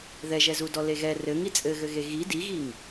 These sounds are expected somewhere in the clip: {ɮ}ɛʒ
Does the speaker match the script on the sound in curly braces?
no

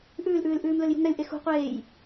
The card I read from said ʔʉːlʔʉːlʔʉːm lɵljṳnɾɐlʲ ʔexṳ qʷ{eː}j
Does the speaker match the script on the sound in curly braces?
yes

